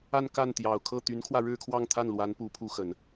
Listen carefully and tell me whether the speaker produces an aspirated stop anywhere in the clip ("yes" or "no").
yes